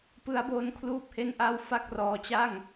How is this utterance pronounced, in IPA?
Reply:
p ɯ˦˥ a̯ b o˦˥ n kʰ l uː˥˩ p̚ h e˥˩ n ʔ a˥˩ w f a˥˩ k̚ r ɔː˧ t͡ɕ a˥˩ ŋ

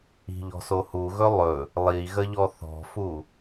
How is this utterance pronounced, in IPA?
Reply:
i̤ ʎ ɔ̤ s o h u ɣ ɵ lˠ ɵ | lˠ i ɣ ə ʎ ɔ θ ɔ̤ f u

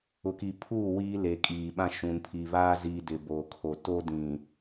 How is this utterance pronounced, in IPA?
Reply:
ʊ˨ k i˨ pʰ uː˦˨ w iː˦ l e˨ kʼ iː˨ ɓ ã˦ ʃ ũ˨ n pʰ i˨ β aː˦ z iː˨ d ɪ˨ b oː˨ kʰ o˨ t o˦ d ĩ˨

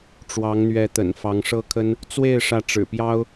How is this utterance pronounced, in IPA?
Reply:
ʈ͡ʂ w ɑ˧˥ ŋ n̪ ɥ ɛ˧˥ t̪ ə̰˨˩ n f ɑ˧˥ ŋ ʂ ɤ˥ kʰ ə˥ n | t͡s w e˥˧ ɪ̯ ʂ ä˥˩ ʈ͡ʂ ɻ̩˨˩ p j ɑ˥ ʊ̯

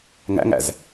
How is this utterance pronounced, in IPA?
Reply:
ŋ æ̰ ŋ æ̰ z

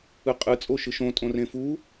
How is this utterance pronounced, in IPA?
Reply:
ɯ qʼ ɯ t͡sʼ o ʃ ɯ ʃ õ tʼ õ r ẽ f u

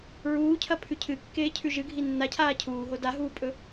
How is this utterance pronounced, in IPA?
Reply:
ɹ uː cʰ ɐ pʰ ʉ cʰ ɨ kː eː cʰ ʉ ʒ ɨ ɡʱ i nː a cʰ aː cʰ uː ɦ o d a ɦ uː pʼ ɵ

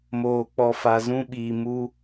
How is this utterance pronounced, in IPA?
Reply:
m oː˨ k͡p ɔ˨ f a˨ z ũ˦ ɓ iː˨ m u˦

